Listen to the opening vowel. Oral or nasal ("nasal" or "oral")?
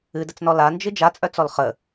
oral